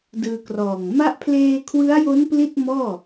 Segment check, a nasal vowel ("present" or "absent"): absent